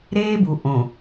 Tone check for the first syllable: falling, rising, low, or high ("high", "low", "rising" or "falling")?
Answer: high